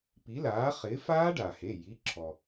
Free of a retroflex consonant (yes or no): no